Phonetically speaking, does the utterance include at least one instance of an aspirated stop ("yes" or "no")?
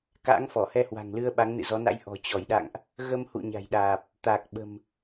no